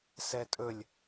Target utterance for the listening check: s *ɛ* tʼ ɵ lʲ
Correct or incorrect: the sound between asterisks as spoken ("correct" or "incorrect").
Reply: correct